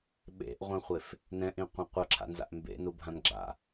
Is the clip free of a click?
no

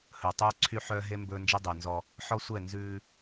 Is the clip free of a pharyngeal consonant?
no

